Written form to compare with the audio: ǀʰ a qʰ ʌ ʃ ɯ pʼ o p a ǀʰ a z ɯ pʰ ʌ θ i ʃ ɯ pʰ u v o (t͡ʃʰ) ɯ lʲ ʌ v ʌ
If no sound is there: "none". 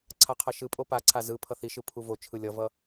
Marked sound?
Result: t͡ʃʰ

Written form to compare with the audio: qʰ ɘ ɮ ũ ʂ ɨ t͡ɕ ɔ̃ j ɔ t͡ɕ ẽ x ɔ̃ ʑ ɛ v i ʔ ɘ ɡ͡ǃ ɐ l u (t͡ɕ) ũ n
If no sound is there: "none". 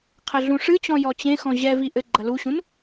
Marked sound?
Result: ɕ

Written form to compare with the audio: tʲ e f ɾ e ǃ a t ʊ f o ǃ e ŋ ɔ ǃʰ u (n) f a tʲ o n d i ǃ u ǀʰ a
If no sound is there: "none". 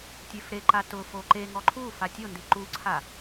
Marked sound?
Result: none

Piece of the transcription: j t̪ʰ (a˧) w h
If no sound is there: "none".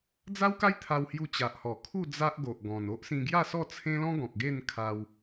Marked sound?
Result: a˧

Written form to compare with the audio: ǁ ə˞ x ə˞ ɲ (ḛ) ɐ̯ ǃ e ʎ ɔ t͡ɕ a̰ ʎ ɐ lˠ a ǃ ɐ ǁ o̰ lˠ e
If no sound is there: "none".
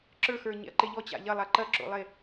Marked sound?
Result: ḛ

